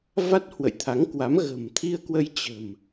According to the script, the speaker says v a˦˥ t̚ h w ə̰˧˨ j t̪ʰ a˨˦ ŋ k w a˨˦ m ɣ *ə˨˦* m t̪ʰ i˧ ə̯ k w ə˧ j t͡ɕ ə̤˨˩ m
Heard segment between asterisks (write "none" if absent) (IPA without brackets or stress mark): ə̤˨˩